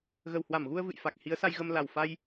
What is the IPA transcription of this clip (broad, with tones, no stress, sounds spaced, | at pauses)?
ɣ ə˨˩ w h w a˧˩ m ɣ u˧ ə̯ v ɨ̰˧˨ j f a˨˩ k̚ h i˨˦ ə̯ s a˧ j ɣ ə˧ m l a˨˩ w f a˧ j